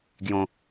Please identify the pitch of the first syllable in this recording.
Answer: high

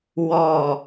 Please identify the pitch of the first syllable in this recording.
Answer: low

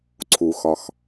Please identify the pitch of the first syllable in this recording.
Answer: low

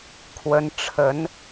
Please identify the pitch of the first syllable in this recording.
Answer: rising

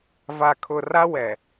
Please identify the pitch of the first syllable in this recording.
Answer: low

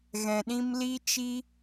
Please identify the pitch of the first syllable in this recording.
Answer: low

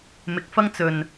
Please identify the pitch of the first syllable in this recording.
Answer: low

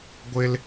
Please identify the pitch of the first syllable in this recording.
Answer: high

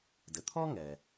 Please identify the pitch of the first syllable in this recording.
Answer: low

